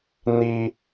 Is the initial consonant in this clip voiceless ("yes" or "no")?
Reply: no